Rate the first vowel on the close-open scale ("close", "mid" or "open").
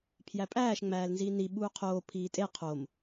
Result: open